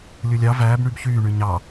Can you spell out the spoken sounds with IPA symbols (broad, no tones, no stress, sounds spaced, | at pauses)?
lʲ u lʲ ɑ v æː b ɳ y b ç yː ɳ y ɲ ɑ